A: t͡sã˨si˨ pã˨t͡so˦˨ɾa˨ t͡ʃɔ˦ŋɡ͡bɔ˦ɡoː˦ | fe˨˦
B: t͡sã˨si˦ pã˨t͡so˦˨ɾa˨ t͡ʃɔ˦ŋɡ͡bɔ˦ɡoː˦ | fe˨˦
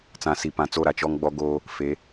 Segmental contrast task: A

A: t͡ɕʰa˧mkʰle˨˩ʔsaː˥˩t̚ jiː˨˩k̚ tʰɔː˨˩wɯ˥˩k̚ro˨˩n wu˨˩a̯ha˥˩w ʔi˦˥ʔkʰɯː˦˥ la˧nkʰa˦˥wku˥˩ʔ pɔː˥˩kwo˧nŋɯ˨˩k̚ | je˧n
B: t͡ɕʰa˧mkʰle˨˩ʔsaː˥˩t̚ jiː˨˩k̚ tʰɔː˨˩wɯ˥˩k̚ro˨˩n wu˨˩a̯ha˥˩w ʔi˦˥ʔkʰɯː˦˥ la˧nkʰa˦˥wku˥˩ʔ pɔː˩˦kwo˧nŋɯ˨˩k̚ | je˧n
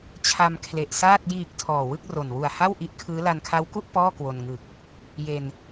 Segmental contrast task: A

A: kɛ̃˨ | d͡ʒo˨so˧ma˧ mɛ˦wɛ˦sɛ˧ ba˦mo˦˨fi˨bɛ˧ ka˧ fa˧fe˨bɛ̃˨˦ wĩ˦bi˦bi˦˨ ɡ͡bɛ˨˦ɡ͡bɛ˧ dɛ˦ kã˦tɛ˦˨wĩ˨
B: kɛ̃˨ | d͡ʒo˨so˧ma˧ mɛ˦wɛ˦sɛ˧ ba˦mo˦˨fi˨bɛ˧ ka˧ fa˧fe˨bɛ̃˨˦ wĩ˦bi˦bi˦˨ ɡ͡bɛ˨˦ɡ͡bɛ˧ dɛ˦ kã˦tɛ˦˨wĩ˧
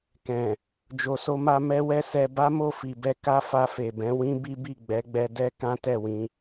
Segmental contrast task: B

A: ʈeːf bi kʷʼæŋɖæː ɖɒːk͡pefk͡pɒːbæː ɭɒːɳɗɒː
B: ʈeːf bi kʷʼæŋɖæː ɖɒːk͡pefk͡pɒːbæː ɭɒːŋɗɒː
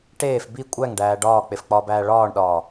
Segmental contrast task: A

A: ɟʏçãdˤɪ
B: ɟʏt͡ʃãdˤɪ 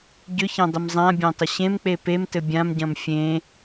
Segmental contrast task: A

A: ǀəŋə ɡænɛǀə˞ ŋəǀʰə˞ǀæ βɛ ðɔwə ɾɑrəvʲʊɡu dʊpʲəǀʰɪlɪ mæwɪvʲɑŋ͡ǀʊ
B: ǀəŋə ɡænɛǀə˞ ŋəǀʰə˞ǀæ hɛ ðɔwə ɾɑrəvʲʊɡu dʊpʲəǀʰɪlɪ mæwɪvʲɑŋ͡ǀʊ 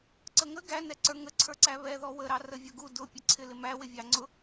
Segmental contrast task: A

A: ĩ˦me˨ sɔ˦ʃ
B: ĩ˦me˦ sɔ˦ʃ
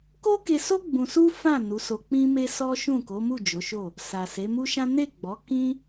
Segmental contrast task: B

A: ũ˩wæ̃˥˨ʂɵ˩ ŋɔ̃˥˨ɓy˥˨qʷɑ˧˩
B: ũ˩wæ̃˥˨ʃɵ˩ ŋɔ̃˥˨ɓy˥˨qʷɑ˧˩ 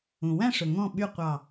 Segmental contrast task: A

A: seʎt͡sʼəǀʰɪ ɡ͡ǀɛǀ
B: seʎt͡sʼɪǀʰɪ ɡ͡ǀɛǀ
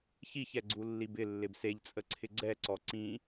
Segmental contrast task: A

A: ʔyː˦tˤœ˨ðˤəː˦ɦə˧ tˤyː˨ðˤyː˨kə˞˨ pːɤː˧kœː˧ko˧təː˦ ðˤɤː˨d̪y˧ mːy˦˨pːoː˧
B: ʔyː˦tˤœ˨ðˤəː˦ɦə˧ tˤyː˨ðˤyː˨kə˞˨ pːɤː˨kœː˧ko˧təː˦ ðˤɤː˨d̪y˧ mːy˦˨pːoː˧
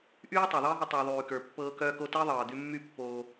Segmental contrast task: A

